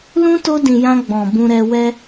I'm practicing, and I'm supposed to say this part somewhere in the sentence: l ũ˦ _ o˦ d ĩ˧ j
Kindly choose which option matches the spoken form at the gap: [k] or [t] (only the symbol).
t